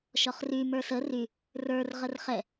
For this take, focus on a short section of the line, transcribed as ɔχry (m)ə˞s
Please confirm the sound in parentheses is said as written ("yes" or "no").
yes